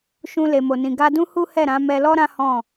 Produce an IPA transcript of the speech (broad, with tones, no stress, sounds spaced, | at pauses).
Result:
ʃ ũ˧ l e˨ m o˨ n ĩ˨ ɡ a˧ d ũ˦ h u˦ h ɛ˦˨ ɾ ã˨˦ m ɛ˧ l ɔ˦ ɾ ã˦ h ɔ̃˦˨